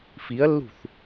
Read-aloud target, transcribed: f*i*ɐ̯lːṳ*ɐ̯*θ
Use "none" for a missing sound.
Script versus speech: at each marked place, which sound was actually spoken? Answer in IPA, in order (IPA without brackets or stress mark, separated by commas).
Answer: i, none